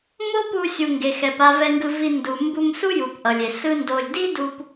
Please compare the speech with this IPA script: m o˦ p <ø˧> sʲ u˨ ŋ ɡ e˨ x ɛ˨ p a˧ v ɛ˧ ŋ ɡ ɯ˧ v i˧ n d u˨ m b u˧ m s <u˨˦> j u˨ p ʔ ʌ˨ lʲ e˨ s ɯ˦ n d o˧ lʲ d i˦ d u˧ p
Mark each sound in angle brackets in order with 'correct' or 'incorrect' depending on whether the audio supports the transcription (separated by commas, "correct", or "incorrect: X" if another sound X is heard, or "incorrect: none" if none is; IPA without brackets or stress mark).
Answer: incorrect: u˧, incorrect: u˦